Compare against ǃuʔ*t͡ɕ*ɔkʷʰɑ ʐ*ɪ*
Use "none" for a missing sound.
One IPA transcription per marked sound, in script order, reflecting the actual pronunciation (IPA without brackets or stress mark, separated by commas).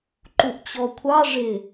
t͡ɕ, ɪ